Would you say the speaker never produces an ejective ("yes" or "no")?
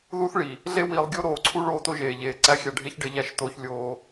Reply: yes